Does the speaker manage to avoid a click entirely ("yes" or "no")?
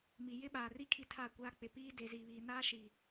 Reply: yes